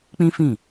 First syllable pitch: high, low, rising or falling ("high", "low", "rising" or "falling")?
high